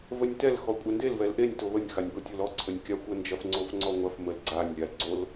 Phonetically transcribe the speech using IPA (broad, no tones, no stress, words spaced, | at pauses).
vənʲtɛl xɔkʷʼɛndel vɛlʔenʲ toβənʲ xanʲbotʲolɔ ǀʰənʲkʲaxʷə nd͡ʒɐfŋ͡ǀofŋ͡ǀɔŋʷɐf məlɡ͡ǀanʲ lʲalɡ͡ǀol